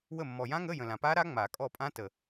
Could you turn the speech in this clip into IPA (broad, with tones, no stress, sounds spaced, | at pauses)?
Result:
w ə˦˨ mː ɔ˨ j ã˦˥ ŋ ə˧˥˧ j ə̃˨ l ã˨ p a˦˥ ɾ a˦˥ ŋ͡m a˨˩˦ kʼ ɔ˦˨ pʼ ã˦˥ t ə˨